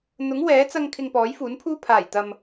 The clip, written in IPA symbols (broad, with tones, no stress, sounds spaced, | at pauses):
n̪ ʊ˨˥ ŋ w ɛː˨˥ t͡s ɐ˧ ŋ kʰ ɪ˧ ŋ p ɔː˨˥ j f uː˨˥ n pʰ uː˥ pʰ aː˨˩ j t̪ ɐ˨ m